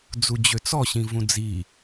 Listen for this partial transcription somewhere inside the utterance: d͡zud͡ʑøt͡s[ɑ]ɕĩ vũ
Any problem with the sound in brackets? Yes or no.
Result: yes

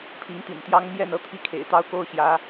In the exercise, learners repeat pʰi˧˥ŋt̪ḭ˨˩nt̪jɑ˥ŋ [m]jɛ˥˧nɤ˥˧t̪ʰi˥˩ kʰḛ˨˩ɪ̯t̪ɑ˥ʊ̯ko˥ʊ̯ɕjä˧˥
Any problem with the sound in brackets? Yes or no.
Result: no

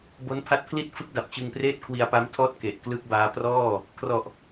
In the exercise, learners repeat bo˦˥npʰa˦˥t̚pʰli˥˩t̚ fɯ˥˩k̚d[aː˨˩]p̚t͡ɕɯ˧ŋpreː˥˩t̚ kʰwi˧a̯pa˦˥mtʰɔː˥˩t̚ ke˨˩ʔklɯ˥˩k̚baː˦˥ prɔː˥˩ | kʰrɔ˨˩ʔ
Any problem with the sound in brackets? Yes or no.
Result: yes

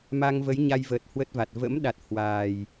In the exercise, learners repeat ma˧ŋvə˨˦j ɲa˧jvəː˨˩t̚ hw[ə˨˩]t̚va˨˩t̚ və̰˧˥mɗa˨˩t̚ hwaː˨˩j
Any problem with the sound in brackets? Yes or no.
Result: yes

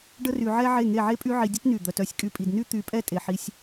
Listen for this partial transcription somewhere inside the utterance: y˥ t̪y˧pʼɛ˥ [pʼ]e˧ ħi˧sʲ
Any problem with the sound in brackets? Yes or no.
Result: yes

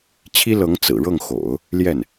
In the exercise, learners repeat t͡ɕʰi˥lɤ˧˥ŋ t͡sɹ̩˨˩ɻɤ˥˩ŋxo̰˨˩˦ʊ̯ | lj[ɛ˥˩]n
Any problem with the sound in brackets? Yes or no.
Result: no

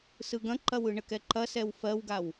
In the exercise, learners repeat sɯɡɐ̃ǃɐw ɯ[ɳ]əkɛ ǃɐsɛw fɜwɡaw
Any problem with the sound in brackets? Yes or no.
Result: no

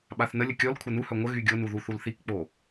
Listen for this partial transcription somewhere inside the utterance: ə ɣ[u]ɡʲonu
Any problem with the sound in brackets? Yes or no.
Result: yes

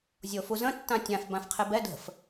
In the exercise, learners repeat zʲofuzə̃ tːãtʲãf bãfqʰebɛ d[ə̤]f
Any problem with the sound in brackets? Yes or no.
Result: no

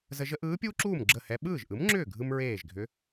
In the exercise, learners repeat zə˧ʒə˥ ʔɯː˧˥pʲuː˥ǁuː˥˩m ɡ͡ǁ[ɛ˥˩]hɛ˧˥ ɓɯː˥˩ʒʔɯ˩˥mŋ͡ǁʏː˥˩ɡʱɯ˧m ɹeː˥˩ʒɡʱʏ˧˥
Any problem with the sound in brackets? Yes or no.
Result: yes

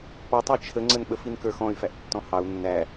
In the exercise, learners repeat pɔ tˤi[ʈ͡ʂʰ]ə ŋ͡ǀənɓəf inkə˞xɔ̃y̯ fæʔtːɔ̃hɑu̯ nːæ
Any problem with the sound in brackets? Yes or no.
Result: yes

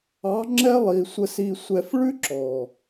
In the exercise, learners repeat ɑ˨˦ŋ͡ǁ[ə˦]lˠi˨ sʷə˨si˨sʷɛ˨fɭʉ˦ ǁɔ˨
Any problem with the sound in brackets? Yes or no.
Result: yes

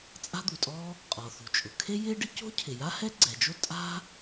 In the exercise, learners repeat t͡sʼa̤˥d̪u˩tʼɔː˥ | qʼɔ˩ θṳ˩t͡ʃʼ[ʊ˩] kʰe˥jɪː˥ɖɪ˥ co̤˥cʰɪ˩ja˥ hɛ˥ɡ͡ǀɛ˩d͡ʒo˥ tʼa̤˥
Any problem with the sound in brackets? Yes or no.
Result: no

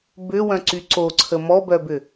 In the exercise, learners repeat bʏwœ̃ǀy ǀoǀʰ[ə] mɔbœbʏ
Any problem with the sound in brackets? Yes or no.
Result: no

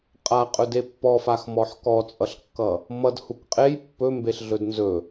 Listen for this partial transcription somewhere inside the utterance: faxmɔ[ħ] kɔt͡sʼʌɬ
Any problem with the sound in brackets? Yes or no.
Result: no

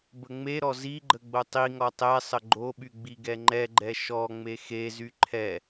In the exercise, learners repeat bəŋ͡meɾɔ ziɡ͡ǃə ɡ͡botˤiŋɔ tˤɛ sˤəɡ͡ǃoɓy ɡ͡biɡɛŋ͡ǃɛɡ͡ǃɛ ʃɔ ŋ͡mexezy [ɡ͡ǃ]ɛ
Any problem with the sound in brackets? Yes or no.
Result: yes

